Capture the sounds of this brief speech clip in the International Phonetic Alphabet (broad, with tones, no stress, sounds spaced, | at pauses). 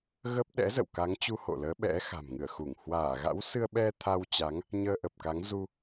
ɣ ə˦˥ p̚ ɗ ɛ̰˧˥ z ə̰˧˨ w k a˨˦ ŋ t͡ɕ u˧ h o̰˧˨ l əː˨˦ ɓ ɛ̰˧˥ x a̤˨˩ m ŋ ɨ˧˩ ə̯ x u˧˩ ŋ h w aː˧˩ ɣ a̰˧˥ w s ɨ˧ ə̯ ɓ ɛ˧ t̪ʰ a˧ w t͡ɕ a˨˦ ŋ | ɲ əː˧ ʔ ə˨˩ p̚ k a˨˦ ŋ z u˧